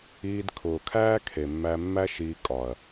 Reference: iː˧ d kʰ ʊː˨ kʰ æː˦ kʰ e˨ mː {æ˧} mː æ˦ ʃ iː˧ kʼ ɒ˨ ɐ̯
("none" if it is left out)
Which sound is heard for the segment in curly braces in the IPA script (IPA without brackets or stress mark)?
æ˧